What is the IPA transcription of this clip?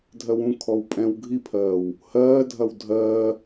dʱɜwũkʰɔw pʼɛ̃w ɡʱipʰɜːw | hɜːdʱɐw dʱɜː

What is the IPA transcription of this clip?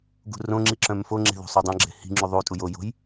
ɡṳrõŋ͡ǁi ǁœ̃mfoŋ͡ǁe̤ ðo̤sˤodˤœ̃ɡ͡ǁe̤ hi̤ŋ͡ǁu ðˤutʼu jojo̤j

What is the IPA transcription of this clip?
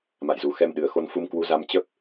ma̰˧˨jzu˨˩xɛ˧mɗɨ˨˩ə̯ xo˧nfu˧mkwu˨˦za˧m t͡ɕə˦˥p̚

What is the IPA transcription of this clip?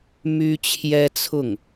my˥t͡ɕʰjɛ˥t͡sʰʊ˥˩ŋ

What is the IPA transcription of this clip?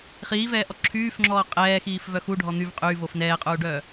χiːvɛːʔɔ ǁʰyːfŋ͡ǁɔː qʼɛːxiːfvœ xuɖʱɔ n̪yv qʼyːvof nɛːqʼuːɖœː

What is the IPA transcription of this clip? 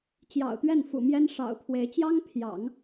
t͡ɕjɑ̰˨˩ʊ̯t̪ɥɛ˥˩nfṵ˨˩ mjɛ˥nʂɑ̰˨˩ʊ̯pʰwe˧˥ɪ̯ t͡ɕjɑ˥ŋpʰjɑ̰˨˩˦ŋ

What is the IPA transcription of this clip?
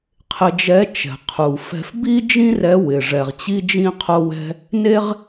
qʰɪ˧d͡ʒɛ˧˥ t͡ʃɛ̤˩qʰu˩fɛ̤˧f bi˥d͡ʒĩ˥ rɛ˧˥wɪ˩ ʐɛ˩ʁt͡ɕi˥d͡ʒĩ˥ qʰo˧wɛ̤˧ | ne˥ʁ

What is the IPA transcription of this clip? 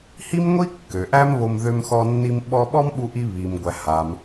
hi˥mŋʷi˥ kːø˩ʔæ˥mβo˧m ðø˧mxɔ˧nːi˧m ɓɔ˧ɓɔ˥mɓu˧ʔi˧ βi˩mɡʷæ˩ ha˩m

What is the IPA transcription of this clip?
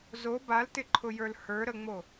zo baltɪǃʰʊjə˞l hə˞ɾəŋ͡mo

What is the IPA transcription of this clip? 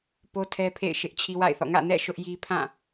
po˦tʰɛ˦pʰḛ˦˨ɪ̯ ʃɪ˦ʔt͡ɕʰi˦wa̰˦˨ɪ̯θɔ̰˦˨ ŋä̰˦˨nɛ̰˦˨ ʃʊ˦ʔji˦pʰã˦˨

